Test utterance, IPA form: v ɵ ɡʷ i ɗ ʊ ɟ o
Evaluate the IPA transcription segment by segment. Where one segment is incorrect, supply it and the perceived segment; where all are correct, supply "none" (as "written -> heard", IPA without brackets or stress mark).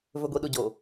none